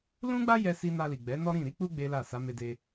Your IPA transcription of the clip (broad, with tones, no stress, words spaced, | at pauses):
lũ˦ɡ͡ba˦ jɛ˧si˧ na˧li˨ɡ͡bɛ˨˦ nɔ˦ɾĩ˦˨ ɾi˧k͡pu˧ ɡ͡be˦la˦˨ sa˨˦me˧ de˧